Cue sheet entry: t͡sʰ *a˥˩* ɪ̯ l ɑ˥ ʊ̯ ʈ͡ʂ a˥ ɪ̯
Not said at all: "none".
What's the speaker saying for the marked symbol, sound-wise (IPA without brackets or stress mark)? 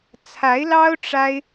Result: a˧˥